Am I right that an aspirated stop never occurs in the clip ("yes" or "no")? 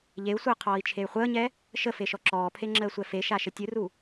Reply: no